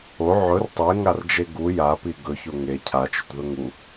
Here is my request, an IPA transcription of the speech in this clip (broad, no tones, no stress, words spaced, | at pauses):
o ʕɵr tˤeŋard͡ʒe ɡu japi ɡɵço ŋe cʰat͡ʃɵtðɵ ŋu